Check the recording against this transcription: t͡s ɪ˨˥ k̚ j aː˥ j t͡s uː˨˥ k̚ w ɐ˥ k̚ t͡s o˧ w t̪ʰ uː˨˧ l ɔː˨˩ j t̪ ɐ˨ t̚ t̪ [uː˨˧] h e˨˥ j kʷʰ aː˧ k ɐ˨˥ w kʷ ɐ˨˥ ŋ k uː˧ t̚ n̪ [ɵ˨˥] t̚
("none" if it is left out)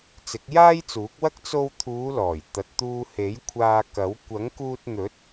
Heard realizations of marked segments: uː˧, ɵ˨˥

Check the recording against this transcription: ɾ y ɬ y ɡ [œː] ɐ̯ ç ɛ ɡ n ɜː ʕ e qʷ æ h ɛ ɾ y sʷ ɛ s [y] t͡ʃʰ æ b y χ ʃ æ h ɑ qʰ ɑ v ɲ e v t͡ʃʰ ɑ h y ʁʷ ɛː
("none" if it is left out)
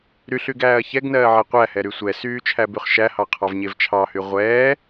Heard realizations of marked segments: æː, yː

